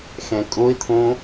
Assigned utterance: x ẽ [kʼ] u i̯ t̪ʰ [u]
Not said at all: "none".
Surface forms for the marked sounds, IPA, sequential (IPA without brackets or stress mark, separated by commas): kʼ, ũ